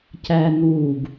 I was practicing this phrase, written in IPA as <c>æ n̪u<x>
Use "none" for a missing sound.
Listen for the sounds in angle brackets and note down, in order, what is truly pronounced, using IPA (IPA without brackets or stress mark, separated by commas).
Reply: c, ɡ